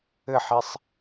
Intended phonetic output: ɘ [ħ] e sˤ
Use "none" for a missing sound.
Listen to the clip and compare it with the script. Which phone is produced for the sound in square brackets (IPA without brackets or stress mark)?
ħ